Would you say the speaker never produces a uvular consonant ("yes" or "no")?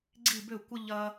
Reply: yes